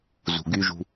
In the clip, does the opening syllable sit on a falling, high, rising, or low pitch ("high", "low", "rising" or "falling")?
low